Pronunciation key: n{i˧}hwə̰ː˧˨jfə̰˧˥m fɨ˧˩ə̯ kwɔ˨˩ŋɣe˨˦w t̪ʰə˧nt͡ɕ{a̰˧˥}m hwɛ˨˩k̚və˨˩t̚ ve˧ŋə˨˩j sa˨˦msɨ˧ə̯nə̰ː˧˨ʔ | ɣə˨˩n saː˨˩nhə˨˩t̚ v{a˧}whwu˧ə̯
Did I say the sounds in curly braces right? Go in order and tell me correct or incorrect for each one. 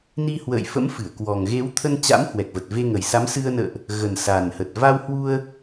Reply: correct, correct, correct

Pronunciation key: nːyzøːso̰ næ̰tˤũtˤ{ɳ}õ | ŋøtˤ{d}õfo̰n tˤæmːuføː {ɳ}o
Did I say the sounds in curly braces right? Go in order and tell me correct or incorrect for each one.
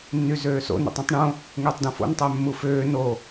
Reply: correct, correct, incorrect: n

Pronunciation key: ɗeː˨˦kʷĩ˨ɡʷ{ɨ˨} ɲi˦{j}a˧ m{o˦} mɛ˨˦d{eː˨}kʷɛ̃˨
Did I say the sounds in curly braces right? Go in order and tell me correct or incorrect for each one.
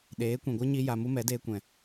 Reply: incorrect: ɨ˦, correct, incorrect: u˦, incorrect: eː˧

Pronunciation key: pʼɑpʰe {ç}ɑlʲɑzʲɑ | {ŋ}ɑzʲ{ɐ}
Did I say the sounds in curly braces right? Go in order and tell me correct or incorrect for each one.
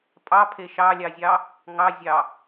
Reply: incorrect: ʃ, correct, incorrect: ɑ

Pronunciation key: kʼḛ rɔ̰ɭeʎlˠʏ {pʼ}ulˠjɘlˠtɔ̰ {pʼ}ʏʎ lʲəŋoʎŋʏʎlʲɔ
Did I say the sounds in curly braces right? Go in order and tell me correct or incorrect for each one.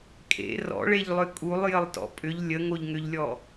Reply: incorrect: kʼ, correct

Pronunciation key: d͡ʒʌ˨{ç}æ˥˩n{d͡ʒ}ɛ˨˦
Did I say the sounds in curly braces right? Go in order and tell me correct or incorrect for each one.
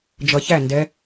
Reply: correct, incorrect: d

